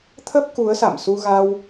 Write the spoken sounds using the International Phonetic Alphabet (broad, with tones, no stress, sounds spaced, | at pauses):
t̪ʰ ə˦˥ p̚ k u˨˦ ə̯ s a̰˧˨ m s u˧ ɣ a˧ w